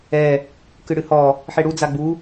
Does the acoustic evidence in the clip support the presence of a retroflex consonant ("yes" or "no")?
yes